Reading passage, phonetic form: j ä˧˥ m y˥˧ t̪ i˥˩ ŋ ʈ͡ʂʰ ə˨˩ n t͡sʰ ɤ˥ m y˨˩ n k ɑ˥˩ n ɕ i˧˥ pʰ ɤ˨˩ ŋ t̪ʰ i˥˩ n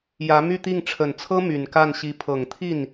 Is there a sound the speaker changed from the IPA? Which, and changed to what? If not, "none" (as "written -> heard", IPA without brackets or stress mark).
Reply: ɑ˥˩ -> a˥˩